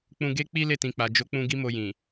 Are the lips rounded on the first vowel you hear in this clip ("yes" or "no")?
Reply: yes